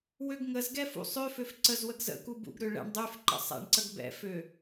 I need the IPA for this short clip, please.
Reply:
w ø ɡ ŋ ə z ɡ ɛ f ṵ sˤ ø f ø f ǀ ə z w ə ɡ z ə̰ k u b ṵ ɡ ɾ ø ɭ ɛ̰ ɳ dˤ y f ǃ ə̰ sˤ ɛ̰ ɳ ǀ ə ɡ b ɛ̰ f ø

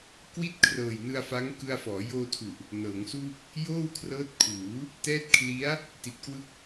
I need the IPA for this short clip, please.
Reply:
k w i˥˩ t̚ kʰ r ɤː˨˩ j n ɯ˧ a̯ f a˦˥ ŋ k ɯ˧ a̯ f ɔː˩˦ j oː˧ tʰ u˨˩ ʔ | n ɤː˩˦ ŋ s uː˥˩ k̚ | j oː˥˩ w kʰ r ɤː˦˥ t̚ kʰ uː˩˦ | t ɛː˦˥ t̚ kʰ l i˦˥ a̯ | t i˨˩ t̚ k w ɯ˥˩ k̚

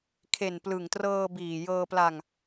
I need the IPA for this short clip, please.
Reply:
kʰ e˨˩ n p l ɯ˨˩ ŋ t r ɤː˧ b iː˨˩ j ɤː˧ p l a˧ ŋ

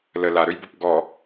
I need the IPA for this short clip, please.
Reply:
l ə l a ɾ ø j b u p ɡ ɔ

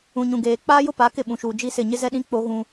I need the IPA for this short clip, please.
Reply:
ũ˨ ɲ ũ˨ ɡ eː˨ k͡p aː˦ j ʊ˦ p a˨˦ k ɪ˦˨ ɓ ũ˨ ʃ uː˨ d͡ʒ i˦ s ɪ˦˨ ɲ ɪ˦ z ɛ˦ ɗ ĩ˦ k͡p o˦ ɣ ũ˦

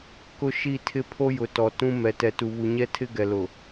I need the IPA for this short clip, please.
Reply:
k ʊ˦ ʃ i˦˨ tʰ ɪ˦ pʰ o˦ j ʊ˨ t ɔ˨ t ũ˦ m ɛ˨ t ɛ˨ t u˨ β u˨ ɲ ɛ˦ tʰ ɪ˦ ɡ ɛ˨ l ʊ˨

